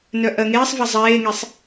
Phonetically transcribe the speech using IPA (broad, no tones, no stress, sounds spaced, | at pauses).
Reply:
n œ ʔ ɜ ŋ eː sˤ v a zˤ eː ŋ e sˤ